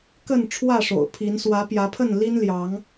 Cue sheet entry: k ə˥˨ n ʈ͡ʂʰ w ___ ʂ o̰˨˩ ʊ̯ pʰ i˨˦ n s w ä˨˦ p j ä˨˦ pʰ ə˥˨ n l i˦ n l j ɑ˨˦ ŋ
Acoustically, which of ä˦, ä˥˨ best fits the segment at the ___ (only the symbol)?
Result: ä˥˨